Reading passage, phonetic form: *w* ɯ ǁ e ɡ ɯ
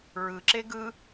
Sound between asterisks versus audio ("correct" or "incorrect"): incorrect